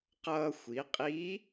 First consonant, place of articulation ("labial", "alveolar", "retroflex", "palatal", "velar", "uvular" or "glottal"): uvular